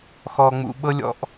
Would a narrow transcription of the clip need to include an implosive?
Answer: yes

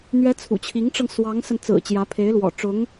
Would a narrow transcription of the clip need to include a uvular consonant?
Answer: no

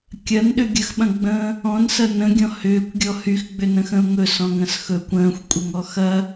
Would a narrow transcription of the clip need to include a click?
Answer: no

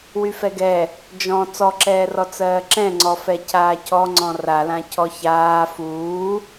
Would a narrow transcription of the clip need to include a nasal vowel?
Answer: yes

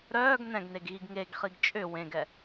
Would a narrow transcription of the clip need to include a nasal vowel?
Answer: yes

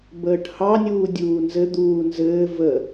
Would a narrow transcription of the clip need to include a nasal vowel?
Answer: no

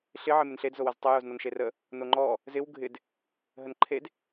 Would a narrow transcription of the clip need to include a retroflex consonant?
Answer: no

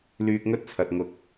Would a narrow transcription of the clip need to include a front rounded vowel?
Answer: yes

